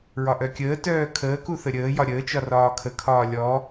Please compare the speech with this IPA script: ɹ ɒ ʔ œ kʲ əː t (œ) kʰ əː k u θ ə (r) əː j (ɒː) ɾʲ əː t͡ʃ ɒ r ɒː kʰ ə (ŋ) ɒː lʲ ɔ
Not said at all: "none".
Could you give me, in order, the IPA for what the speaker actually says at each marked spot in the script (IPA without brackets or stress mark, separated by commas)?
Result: œː, ɾʲ, ɒ, kʰ